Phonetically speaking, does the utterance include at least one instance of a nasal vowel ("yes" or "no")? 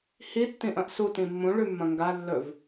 yes